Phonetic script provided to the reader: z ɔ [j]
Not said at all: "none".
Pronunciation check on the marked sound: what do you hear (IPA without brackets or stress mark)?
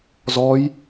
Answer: j